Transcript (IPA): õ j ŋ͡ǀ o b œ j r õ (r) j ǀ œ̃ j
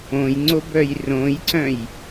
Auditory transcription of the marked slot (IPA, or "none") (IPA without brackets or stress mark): none